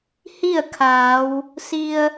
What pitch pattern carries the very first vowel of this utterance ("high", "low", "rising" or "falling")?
falling